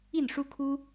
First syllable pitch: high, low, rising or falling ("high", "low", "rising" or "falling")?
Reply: falling